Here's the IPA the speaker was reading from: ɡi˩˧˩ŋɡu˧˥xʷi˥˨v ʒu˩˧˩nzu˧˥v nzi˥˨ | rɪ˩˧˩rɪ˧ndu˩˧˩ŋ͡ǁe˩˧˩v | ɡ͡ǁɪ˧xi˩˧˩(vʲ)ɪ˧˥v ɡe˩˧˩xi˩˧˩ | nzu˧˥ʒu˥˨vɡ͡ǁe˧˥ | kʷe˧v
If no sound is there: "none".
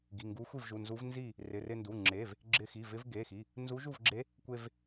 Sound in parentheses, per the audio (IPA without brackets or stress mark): v